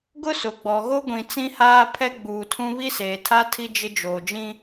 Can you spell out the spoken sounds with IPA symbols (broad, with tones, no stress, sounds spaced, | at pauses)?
ɡ ʊ˦ s ʊ˨ ɡ͡b ɔ˨ ɣ o˦ ɡʷ ĩ˨ t͡s ĩ˦ h aː˦ pʰ ɛ˦ ɡ͡b uː˨ tʰ ũ˦ β i˦ s eː˨ tʰ a˦ tʰ i˦ d͡ʒ ɪ˦ d͡ʒ oː˨ d͡ʒ ĩ˦